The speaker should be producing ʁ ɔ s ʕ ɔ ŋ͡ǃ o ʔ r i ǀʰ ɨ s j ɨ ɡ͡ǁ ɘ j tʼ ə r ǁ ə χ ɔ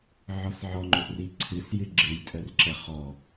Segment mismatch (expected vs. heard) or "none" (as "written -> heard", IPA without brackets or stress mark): ʁ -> ʕ